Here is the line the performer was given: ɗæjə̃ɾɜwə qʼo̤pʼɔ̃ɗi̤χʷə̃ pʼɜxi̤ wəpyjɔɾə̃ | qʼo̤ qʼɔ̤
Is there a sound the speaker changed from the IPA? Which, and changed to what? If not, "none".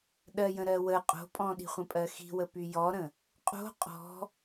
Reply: æ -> ɜ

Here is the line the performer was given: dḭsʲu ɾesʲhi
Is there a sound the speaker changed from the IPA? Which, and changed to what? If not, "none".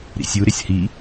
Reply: d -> ɾ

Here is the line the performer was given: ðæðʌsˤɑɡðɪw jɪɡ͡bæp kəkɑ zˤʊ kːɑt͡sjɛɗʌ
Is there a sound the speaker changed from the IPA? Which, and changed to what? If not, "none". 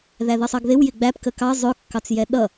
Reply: none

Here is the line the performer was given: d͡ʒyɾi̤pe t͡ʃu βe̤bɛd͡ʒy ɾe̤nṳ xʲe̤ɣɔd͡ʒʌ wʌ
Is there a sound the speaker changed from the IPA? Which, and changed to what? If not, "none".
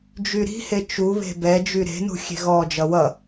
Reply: p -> h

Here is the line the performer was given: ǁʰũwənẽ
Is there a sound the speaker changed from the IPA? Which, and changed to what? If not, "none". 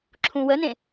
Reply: none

